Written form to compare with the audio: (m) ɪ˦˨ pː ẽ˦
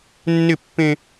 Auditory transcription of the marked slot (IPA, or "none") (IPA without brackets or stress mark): nː